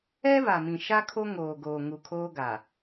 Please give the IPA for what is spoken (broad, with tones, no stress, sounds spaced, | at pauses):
ɛ˦ β a˨ m ĩ˨ ʃ a˦ kʰ o˦ ŋ oː˨ ɡ oː˨ ŋ u˨ kʰ oː˦ ɡ a˨